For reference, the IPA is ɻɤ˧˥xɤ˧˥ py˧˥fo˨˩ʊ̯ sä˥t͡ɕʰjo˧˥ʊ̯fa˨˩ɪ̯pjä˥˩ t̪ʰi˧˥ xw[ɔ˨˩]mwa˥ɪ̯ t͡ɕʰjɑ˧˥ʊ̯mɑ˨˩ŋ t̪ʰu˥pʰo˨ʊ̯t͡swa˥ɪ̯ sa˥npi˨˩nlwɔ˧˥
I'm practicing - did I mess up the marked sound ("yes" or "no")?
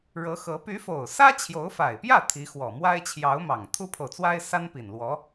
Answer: no